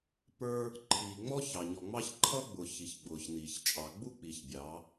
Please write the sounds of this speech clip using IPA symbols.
pə˞˦ | ǃʰiː˨ŋ͡mɔ˦ çɑ˨ɲɔ˨ŋ͡mɑ˦ç ǃʰʌ˦ɡ͡bʊ˨ çi˨çɡ͡bʊː˨çniː˨ç t͡ʃʼɑ˨ɡ͡bu˦k͡pi˨ç bʲɑ˨˦

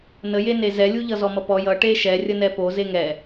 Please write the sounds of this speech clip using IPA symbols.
nəjene zɛlʲuʎʌ zɔmʌpɔ jʌ ʈeʃɛ rʲənɛpo zeŋɛ

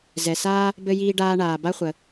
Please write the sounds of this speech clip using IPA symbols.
zɛ˩saː˥ | bɘ˧jiː˧ɖaː˧ɳaː˩ ba˥χʷə˩

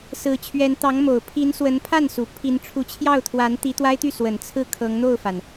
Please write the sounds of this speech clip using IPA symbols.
sɹ̩˧˥t͡ɕʰɥɛ˧˥n t̪ɑ˧˥ŋmo˨˩ʊ̯pʰi˧˥nswə˧˥n pʰa˥˩nsu˨˩ pʰi˧˥nʈ͡ʂʰu˧˥ t͡ɕʰjɑ˥˩ʊ̯t̪ʰwa˧˥n t̪i˧˥t̪wa˥ɪ̯t̪y˥˩swə˨˩n t͡sʰɹ̩˥˩kʰɤ˧˥ŋn̪o˥˩ʊ̯fa˩n

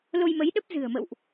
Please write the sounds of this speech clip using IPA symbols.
lo˧jmə˨˦jɗə˦˥p̚ zɨ̤˨˩ə̯mə̰˧˨wʔ

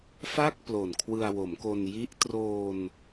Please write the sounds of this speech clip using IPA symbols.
fa˥˩k̚ plo˨˩nkʰwɯ˧a̯wo˩˦mko˧n ji˦˥ʔ troː˧n

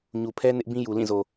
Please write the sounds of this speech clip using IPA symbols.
ɲu˨pʰɛ˦ nɪ˦ʔbĩ˦ ju˨lĩ˦˨zo˨

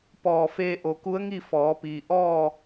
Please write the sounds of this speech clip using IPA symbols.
pɔː˧˩feː˧ʔo˩ ku˧˥ə̯ŋi˥˨ fɔː˩˧piː˩ʔɔː˥˨

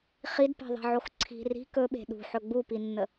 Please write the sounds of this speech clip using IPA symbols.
χidpe̤ðˤe̤ʕox ǀʰi̤ ri̤ kɵɓe̤ ɗṳħɵ ɡ͡bupinːə

